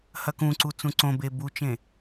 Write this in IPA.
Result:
h ɐ k ũ ǀ u t͡s ũ ǀ õ b e b u t͡ʃ ẽ

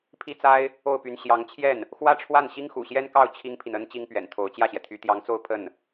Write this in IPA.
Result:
pʰ i˥ t͡s a˥ ɪ̯ | o˥˩ ʊ̯ p y˧˥ n ɕ j ɑ˧˥ ŋ t͡ɕʰ j ɛ˥˩ n | x w ä˥ ʈ͡ʂʰ w a˥˩ n ɕ i˥ ŋ x ṵ˨˩ ɕ j ɛ˥ n k ɑ˥˩ ʊ̯ t͡ɕʰ i˥ ŋ pʰ i˨ n ə˥ n t͡ɕ i˥ ŋ p ɥ ɛ̰˨˩ n t̪ʰ o˧˥ ʊ̯ t͡ɕ j ä˥˩ ɕ j ɛ˩ t̪ʰ y˧˥ t̪ j ɑ˧˥ ŋ t͡s o˥˧ ʊ̯ pʰ ə˥˩ n

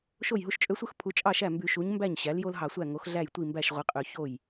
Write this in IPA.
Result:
ʃ o˥˩ j ɦ u˦ ʃ t͡ʃʼ ø˦ sʷ ɯ˦ x pʰ u˩˥ t͡ʃʼ ɑ˥˩ ʃ æ˥˩ m b y˧˩˧ ʃ u˩˥ ɲ m b æ˥˩ ɲ ɕ æ˩˥ l j o˦ l ɦ ɑ˧˩˧ sʷ æ˥˩ ŋ o˩˥ x ɮ æ˥˩ j tʷ i˥˩ m b æ˥˩ ʃ ʁʷ i˩˥ qʼ ø˧˩˧ ç o˥˩ j

